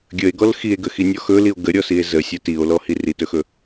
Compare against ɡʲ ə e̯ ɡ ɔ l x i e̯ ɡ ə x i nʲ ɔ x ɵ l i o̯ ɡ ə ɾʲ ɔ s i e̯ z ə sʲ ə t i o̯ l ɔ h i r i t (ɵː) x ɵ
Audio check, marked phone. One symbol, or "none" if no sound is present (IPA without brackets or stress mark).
ɵ